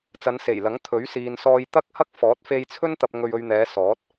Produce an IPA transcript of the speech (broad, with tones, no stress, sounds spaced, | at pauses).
t͡s ɐ˨˧ n s e˨˩ j l ɐ˨˥ ŋ t̪ʰ ɵ˨˥ ɥ s iː˨ n s ɔː˧ j t̪ ɐ˥ k̚ h ɐ˥ k̚ f ɔː˨˥ t̚ f e˧ j t͡sʰ ɵ˥ n t̪ ɐ˧ p̚ ŋ ɵ˧ ɥ ɵ˧ ɥ n̪ ɛː˨˧ s ɔː˨˥ t̚